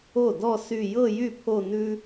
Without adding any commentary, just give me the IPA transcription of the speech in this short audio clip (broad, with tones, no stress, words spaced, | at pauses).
o˥˩dɔ˥˧ sy˥˧ jɤ˥˧jy˥˩ pʰo˥˧nʉ˥